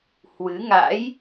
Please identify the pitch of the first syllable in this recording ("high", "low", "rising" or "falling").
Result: rising